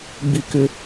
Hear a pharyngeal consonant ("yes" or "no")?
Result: no